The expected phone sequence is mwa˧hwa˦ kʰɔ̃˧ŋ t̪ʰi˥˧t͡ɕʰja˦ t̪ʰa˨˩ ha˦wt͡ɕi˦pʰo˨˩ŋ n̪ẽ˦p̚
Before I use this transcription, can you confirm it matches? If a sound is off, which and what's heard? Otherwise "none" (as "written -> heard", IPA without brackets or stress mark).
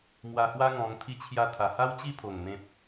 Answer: kʰ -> ŋ